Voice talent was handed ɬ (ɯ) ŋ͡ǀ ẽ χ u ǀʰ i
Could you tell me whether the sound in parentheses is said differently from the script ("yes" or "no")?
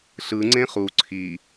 no